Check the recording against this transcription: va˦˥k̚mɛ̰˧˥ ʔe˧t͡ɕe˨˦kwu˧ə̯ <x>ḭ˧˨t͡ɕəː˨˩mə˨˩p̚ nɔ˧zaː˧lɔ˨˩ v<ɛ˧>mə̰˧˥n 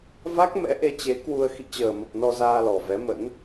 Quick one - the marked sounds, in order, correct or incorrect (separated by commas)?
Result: correct, incorrect